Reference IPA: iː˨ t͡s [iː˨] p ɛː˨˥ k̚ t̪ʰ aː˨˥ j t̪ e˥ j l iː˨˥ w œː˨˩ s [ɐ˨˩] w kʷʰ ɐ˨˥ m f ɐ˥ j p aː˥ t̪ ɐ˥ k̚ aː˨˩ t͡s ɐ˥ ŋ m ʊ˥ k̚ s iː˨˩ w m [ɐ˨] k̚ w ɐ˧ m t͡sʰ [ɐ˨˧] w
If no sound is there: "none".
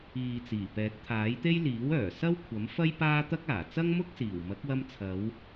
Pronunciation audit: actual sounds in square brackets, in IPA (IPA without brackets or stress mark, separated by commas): iː˨˩, ɐ˥, ɐ˨˥, ɐ˨˧